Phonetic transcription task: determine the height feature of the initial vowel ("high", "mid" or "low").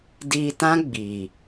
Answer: high